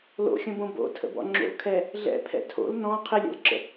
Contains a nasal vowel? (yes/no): yes